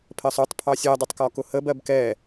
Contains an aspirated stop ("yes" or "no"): yes